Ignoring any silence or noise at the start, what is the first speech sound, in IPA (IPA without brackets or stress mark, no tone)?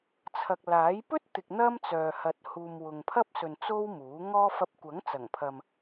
t͡sʰ